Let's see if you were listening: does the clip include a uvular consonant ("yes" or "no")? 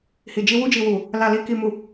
no